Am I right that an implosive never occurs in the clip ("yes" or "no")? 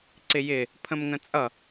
yes